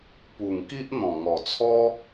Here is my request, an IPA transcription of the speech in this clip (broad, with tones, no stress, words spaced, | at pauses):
pu˨˩ŋki˦ʔn̪ɔ̃˨˩ ŋɔ˨˩t͡sʰɔ˦